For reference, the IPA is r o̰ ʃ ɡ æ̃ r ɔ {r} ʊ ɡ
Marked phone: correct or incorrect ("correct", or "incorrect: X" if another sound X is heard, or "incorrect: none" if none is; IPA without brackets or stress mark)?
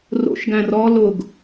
incorrect: l